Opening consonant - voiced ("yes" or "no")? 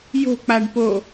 yes